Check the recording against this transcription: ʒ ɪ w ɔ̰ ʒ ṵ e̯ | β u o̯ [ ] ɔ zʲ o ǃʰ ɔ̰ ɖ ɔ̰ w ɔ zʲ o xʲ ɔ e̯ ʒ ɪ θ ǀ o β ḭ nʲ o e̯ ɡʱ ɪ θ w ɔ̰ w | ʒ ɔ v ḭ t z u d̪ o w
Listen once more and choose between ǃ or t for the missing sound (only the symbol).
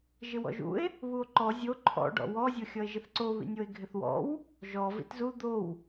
ǃ